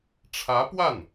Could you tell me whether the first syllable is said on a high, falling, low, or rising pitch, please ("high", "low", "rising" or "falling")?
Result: rising